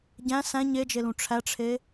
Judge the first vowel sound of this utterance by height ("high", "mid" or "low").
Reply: low